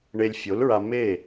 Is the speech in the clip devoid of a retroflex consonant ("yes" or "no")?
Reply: no